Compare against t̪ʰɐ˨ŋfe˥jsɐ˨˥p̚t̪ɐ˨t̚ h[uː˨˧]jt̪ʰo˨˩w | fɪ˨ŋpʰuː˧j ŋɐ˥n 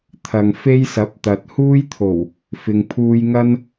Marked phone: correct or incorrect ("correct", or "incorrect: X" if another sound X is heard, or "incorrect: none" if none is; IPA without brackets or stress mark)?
incorrect: uː˥